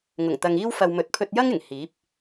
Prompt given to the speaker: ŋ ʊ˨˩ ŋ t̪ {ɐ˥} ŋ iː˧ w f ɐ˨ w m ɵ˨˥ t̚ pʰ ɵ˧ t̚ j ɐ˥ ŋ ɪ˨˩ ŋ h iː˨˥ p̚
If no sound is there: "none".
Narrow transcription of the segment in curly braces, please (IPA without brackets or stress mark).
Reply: ɐ˨